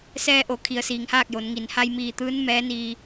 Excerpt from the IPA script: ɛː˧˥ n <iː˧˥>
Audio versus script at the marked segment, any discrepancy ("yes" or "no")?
yes